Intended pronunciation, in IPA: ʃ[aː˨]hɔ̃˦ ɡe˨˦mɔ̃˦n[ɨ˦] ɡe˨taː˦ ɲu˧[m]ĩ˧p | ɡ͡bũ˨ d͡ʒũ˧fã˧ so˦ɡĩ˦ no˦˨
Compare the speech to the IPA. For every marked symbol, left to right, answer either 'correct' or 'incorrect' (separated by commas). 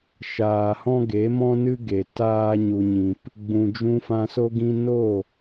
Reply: correct, correct, incorrect